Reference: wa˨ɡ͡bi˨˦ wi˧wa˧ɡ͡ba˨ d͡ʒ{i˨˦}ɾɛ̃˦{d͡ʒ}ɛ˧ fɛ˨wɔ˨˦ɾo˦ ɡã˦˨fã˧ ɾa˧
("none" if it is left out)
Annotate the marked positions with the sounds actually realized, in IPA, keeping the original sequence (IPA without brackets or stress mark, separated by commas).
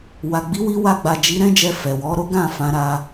i˨˦, d͡ʒ